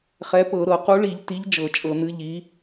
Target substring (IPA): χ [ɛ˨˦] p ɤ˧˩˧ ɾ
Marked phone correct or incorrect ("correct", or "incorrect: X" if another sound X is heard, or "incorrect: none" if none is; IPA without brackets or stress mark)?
correct